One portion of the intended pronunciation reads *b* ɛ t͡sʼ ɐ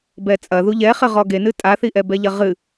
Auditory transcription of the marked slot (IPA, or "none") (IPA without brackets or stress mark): b